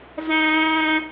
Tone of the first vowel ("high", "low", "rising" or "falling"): high